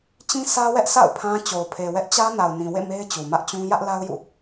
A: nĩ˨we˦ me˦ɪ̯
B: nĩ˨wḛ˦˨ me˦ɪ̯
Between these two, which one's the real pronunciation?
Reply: B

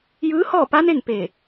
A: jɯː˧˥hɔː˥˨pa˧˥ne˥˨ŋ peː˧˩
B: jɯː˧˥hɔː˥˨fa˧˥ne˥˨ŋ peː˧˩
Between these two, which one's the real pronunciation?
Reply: A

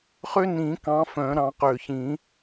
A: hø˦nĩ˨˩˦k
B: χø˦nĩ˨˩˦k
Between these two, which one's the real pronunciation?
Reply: B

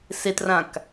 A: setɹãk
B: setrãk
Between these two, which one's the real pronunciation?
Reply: B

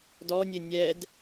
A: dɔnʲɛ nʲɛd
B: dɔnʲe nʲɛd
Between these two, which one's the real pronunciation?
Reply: B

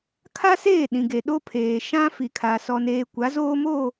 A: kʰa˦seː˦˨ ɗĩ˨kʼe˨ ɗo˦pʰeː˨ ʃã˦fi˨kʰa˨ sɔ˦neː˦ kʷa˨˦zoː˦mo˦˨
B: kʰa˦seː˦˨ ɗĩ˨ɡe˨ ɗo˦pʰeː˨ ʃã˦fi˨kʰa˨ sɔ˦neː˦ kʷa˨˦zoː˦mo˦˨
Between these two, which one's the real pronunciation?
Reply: B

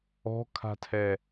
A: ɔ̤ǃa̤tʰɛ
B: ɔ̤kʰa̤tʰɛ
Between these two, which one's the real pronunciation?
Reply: B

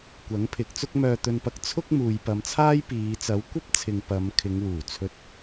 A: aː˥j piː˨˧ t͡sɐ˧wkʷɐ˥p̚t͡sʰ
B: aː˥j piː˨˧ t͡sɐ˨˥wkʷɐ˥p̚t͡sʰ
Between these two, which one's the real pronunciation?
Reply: B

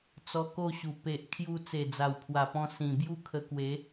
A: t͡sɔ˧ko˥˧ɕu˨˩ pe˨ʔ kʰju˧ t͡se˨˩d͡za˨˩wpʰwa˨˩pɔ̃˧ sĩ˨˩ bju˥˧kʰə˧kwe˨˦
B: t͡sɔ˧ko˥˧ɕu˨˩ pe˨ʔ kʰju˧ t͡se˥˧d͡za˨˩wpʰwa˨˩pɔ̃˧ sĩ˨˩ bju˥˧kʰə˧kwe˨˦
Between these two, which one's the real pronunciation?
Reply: A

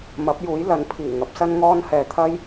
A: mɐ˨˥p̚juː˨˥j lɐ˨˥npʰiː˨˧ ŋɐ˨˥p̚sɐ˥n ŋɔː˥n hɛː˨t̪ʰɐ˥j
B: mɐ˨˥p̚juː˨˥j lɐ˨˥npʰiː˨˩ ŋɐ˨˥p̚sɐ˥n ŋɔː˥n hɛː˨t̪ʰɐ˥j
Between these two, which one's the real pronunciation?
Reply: B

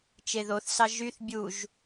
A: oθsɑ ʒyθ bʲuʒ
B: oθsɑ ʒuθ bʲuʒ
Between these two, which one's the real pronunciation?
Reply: A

